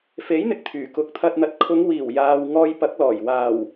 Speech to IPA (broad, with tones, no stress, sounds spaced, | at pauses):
f e˨˥ j n̪ ɪ˨ k̚ t̪ʰ yː˨˩ k ʊ˨˥ k̚ t̪ʰ ɐ˧ t̚ n̪ ɐ˨˥ t̚ kʰ ʊ˨˧ ŋ w iː˨˩ w j aː˨ w ŋ ɔː˧ j p ɐ˨˥ k̚ l ɔː˨˩ j w aː˨˩ w